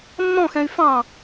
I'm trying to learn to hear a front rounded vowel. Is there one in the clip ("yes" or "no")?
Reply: yes